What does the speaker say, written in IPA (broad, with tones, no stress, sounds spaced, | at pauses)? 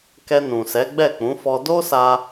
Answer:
k ɛ˧ n ũ˨ s ɛ˨˦ ɡ͡b ɛ˦˨ k͡p ũ˨˦ f ɔ˧ d o˦ s a˧